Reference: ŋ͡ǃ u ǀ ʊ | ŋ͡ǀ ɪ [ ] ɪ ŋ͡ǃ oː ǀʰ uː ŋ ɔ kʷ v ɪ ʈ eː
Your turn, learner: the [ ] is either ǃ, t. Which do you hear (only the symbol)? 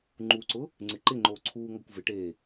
ǃ